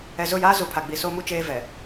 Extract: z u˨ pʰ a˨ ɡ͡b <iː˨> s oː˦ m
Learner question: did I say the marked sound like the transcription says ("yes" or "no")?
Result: no